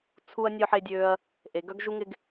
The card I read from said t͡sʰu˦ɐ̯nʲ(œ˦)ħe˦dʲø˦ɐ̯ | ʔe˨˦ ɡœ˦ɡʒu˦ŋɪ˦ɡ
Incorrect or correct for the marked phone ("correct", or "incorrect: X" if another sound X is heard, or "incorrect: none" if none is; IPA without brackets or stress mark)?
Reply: correct